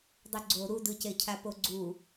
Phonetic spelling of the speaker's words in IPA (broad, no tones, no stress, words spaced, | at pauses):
dˤuɡ͡ǀo ɾudɯce cʰapoɡ͡ǀu